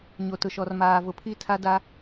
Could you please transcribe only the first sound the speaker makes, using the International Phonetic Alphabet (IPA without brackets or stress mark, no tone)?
ɲ